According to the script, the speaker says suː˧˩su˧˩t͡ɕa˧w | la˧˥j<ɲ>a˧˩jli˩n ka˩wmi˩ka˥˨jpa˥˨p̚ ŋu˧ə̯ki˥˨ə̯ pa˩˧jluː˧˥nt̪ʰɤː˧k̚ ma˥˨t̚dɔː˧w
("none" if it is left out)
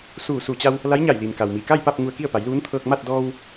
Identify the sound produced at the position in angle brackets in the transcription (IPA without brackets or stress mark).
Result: ɲ